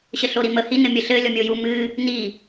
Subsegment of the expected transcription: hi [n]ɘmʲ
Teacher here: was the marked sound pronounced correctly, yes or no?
yes